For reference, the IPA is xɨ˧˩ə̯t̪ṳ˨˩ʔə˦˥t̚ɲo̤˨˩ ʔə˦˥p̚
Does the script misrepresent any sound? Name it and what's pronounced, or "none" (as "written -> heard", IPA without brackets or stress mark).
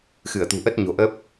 none